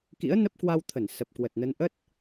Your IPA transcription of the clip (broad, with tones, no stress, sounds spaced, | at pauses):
k ḭ˧˥ ə̯ n ə˦˥ p̚ k w a˧ w t̪ʰ ə˧˩ n s ə˨˩ p̚ k w ə˨˩ t̚ n ə˨˦ n ʔ ə˦˥ t̚